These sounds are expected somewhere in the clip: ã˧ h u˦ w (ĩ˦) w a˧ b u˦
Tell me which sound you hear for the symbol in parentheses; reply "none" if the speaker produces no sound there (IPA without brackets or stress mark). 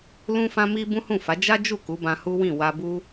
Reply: ĩ˦˨